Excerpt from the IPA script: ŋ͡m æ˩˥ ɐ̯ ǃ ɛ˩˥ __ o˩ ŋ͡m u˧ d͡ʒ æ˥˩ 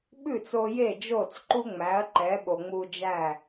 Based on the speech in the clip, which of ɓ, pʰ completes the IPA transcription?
ɓ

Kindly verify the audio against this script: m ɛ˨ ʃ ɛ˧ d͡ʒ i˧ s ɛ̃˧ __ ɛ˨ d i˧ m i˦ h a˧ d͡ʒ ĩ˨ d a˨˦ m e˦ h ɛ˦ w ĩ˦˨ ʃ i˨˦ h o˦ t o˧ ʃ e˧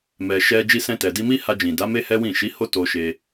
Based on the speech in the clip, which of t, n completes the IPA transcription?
t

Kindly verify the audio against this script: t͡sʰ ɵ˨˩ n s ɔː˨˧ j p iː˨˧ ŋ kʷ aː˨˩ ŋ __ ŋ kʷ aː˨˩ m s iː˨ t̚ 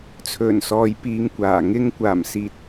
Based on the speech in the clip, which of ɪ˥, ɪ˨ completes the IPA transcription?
ɪ˥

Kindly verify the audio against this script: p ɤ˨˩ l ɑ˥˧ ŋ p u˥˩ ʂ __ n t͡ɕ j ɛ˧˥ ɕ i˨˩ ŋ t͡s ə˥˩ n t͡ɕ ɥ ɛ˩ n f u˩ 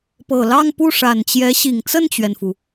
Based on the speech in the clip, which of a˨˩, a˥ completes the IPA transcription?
a˨˩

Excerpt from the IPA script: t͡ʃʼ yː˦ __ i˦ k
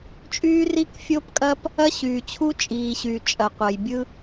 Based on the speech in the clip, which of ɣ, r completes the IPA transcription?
r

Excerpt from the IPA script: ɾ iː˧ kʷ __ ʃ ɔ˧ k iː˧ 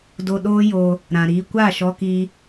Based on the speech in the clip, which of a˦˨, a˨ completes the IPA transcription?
a˦˨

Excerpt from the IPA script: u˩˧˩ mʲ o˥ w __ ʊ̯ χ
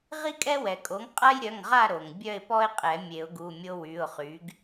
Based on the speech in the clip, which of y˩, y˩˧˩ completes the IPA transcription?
y˩˧˩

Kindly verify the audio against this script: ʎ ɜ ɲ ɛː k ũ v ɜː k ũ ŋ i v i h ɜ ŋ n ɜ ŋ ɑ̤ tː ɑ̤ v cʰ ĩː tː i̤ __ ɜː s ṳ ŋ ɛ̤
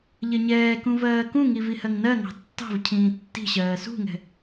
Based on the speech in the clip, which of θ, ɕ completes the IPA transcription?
ɕ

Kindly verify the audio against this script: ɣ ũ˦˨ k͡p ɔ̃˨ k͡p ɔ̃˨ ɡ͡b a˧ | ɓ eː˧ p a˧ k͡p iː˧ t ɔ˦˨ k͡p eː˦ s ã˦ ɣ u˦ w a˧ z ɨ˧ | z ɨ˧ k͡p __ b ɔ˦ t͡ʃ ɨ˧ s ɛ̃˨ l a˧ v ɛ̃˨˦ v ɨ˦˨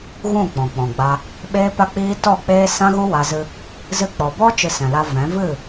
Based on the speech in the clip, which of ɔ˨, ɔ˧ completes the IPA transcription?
ɔ˨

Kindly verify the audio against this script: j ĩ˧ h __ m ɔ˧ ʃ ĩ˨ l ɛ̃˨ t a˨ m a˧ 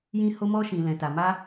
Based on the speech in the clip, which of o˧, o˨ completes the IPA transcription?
o˧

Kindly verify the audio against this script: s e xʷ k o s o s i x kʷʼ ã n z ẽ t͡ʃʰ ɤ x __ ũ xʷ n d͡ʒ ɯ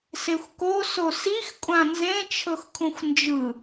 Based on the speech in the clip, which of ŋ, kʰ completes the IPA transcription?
kʰ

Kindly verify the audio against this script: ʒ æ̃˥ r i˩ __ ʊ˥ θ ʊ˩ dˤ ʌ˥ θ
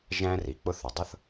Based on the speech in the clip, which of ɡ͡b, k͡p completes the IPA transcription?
k͡p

